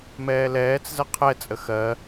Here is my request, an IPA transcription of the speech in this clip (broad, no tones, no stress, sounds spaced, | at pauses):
m ɛː l ɛː t͡s z ɜ qʰ ɛ t͡sʼ ə x ɜ